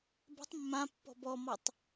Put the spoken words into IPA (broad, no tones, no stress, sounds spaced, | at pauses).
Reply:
b ɛ̤ tˤ mː ã pː ɔ̤ b ɔ m ɔ tˤ